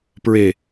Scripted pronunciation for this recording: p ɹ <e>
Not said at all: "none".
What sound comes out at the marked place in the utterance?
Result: e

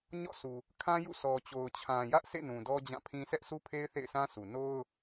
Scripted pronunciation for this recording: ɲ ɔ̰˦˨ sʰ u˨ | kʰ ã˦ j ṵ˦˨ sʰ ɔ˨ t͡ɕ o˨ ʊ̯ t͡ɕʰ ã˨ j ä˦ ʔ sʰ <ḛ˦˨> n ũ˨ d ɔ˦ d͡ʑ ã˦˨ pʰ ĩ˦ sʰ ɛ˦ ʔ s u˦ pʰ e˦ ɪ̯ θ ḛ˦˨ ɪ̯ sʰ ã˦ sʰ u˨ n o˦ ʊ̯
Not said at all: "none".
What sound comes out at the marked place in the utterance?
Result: ḛ˦˨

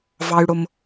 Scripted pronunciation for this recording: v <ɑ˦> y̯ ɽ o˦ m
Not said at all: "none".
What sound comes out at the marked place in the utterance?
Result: ɑ˦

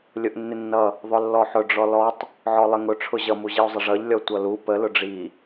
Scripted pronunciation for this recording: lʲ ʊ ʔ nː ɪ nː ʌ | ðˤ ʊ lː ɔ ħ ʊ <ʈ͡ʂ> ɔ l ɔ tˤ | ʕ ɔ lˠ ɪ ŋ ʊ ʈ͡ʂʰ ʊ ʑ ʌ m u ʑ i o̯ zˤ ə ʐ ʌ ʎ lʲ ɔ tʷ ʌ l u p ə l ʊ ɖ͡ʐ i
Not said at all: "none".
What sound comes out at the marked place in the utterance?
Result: ɖ͡ʐ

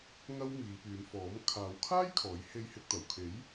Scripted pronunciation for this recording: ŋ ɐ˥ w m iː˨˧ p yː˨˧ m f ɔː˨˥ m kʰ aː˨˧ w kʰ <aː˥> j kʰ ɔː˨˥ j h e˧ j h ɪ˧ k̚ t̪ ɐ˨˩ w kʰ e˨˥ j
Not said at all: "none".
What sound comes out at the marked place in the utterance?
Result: aː˥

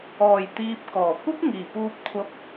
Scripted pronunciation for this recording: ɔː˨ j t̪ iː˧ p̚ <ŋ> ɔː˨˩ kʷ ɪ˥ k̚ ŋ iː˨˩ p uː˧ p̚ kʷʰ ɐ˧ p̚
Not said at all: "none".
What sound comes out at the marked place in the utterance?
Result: k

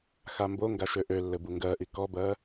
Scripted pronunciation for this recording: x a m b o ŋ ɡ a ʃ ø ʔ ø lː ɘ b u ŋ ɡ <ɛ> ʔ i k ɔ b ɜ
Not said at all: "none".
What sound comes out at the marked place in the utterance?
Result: ɜ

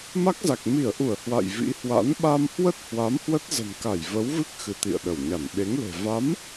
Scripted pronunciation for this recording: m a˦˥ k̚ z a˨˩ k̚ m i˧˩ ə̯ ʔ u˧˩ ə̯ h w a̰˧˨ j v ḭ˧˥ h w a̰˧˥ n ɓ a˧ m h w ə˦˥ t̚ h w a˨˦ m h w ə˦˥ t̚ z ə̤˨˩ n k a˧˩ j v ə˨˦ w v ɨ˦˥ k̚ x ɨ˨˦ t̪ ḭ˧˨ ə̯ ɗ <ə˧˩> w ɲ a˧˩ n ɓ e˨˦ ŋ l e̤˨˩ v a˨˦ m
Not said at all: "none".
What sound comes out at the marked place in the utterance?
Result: ə˧˩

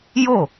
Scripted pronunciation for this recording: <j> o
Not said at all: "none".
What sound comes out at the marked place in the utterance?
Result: j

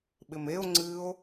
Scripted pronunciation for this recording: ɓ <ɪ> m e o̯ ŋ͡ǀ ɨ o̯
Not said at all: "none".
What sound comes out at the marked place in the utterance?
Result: ɪ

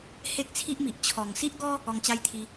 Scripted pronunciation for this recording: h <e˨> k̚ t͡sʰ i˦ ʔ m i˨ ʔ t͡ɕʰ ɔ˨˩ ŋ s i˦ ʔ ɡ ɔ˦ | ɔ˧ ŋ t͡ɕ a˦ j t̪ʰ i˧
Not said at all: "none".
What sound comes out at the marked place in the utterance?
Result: e˦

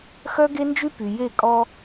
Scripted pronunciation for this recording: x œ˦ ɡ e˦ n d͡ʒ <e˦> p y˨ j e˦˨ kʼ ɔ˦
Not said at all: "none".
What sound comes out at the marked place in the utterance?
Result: y˦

